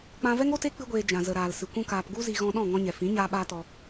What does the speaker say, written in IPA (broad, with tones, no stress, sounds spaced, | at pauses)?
k͡p ã˧ v ɛ˦ ŋ o˦ t e˦ k͡p ɨ˦ ɡʷ eː˧ d͡ʒ ã˨ z ə˨ ɾ aː˨ l s ɨ˨ kʷ ũ˦ k aː˧ p ɡ u˦ z i˧ ɣ ɔ̃˧ ɗ ɔ̃˦˨ ŋ ɔ̃˧ ɲ ɛ˨ f ĩ˨˦ ɲ aː˦ ɓ aː˦ t ɔ˧